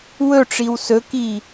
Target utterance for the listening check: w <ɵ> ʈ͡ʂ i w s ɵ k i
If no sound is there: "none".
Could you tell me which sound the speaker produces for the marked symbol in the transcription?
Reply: ɵ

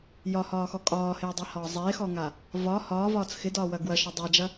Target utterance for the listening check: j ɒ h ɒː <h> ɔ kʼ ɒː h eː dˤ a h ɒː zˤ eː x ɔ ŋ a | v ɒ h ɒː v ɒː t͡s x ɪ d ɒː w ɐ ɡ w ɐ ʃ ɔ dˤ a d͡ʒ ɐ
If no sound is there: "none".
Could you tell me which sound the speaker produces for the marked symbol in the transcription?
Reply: x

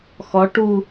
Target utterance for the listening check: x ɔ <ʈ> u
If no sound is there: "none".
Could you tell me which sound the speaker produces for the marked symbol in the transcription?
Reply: ʈ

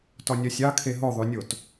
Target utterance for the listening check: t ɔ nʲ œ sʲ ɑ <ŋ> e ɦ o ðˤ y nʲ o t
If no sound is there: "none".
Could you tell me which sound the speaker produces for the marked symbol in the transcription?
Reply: kʰ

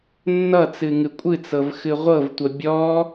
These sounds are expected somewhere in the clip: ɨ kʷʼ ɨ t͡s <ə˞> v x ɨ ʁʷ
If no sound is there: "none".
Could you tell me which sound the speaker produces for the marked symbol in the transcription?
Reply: ɤ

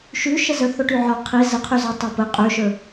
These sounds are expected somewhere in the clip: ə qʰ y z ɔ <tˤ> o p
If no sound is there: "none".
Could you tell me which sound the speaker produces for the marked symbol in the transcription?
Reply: tˤ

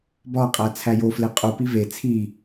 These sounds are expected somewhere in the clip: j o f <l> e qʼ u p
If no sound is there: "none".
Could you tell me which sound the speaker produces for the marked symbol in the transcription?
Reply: l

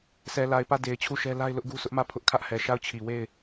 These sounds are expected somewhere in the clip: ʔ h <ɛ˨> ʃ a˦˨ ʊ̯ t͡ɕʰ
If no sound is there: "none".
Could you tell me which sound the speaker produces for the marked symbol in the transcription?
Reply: ɛ˨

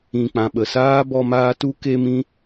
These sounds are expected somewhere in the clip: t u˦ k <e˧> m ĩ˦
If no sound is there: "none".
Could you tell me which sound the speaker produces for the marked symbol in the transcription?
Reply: e˦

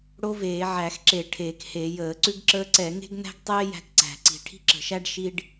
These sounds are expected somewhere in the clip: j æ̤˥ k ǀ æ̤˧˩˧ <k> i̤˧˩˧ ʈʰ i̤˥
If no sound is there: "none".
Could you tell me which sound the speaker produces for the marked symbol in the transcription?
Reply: ǀ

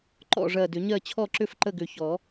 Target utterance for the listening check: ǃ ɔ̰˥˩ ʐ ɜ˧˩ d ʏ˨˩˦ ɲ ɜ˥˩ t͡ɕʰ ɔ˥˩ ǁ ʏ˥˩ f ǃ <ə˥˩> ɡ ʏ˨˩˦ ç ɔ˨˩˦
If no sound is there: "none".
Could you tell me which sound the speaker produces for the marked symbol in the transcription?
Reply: ə˥˩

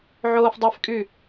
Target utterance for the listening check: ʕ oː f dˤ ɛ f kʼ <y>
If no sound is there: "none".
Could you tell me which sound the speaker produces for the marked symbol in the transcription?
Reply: y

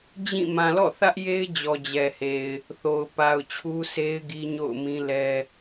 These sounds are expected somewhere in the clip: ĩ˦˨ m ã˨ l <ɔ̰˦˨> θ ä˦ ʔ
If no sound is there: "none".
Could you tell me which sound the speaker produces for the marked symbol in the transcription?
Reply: ɔ̰˦˨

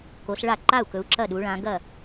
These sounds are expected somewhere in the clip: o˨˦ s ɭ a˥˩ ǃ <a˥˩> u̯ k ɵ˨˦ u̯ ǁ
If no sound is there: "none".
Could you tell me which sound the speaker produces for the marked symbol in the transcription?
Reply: a˥˩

